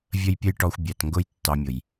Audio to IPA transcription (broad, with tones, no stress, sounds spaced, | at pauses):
vʲ ə˦ j pʲ ə˦ j ʈ ɔ˧ xʷ bʲ æ˨ t ŋ ɡ ʊ˦ j tː ɑ˧ mʲ ʊ˨ j